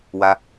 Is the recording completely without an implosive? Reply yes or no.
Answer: yes